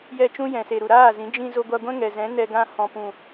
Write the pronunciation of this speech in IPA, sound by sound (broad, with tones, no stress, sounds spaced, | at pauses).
j ɛ˦˨ t͡ʃ ũ˦ j ɛ̃˨ s e˨ ɾ u˨ ɾ aː˦˨ z ĩ˨˦ d͡ʒ ĩ˧ z o˧ ɡʷ a˧ ɡʷ ɛ̃˦ ŋ ɛ˨ z ɛ̃˨˦ n ɛ˧ ɡ ã˧ h ɔ̃˨ p ũ˨